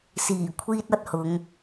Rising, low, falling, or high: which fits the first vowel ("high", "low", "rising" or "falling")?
low